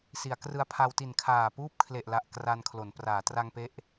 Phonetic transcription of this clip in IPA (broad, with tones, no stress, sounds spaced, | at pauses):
s i˩˦ a̯ k r ɯ˧ a̯ pʰ a˧ w t i˨˩ n kʰ aː˨˩ p uː˥˩ p̚ kʰ l e˨˩ ʔ l a˨˩ ʔ k r a˧ n kʰ l o˩˦ n p r aː˩˦ t r a˧ ŋ p e˦˥ ʔ